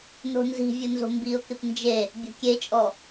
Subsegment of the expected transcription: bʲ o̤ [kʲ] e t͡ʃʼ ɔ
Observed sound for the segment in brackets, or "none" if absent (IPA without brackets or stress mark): kʲ